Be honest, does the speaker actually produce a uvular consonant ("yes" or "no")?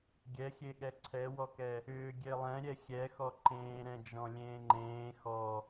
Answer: no